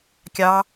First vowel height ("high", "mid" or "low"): low